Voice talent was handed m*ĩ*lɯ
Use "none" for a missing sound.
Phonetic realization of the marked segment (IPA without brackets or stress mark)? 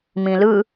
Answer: ĩ